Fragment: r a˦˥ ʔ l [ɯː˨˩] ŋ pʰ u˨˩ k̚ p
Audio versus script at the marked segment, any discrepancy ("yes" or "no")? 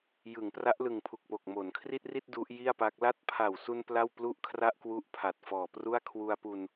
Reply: yes